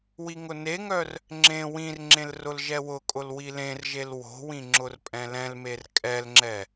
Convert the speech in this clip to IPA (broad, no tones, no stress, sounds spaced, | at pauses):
w i ŋ ʊ n e ŋ œ r | ŋ͡ǁ ẽ w ĩ r ŋ͡ǁ ẽ l r ʊ l ʒ ɛ w ʊ kʼ ʊ l w i l ẽ r ʒ e l w o̤ w ĩ ŋ͡ǁ ʊ r pʼ ɛ̃ l ɛ̃ l m e r kʼ ɛ l ŋ͡ǁ ɛ